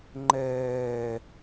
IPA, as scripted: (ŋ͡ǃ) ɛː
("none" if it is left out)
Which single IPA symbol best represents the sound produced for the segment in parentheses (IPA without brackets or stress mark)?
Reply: ŋ͡ǃ